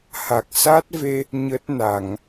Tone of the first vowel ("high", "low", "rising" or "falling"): low